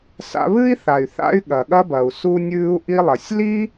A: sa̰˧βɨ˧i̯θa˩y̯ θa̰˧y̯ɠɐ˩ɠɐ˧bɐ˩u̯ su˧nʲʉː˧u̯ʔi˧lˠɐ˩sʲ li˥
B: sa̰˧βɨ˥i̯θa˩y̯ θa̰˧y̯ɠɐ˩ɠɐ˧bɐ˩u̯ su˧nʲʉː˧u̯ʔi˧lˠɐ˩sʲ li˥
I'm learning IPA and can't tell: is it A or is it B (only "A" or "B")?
B